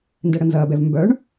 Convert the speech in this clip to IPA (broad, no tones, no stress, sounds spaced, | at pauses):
n d ɛ ɽ ə n z ɐː b ɛ v m b œ ɳ